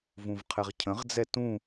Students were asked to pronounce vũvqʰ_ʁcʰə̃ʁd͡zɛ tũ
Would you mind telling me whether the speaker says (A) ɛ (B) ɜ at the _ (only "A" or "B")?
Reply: A